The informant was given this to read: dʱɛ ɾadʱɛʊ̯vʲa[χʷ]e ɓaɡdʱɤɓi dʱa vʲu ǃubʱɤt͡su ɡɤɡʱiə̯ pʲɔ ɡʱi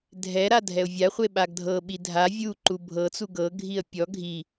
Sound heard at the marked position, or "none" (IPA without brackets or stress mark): χʷ